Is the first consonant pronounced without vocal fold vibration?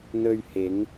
no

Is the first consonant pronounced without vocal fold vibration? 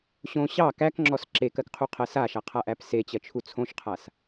yes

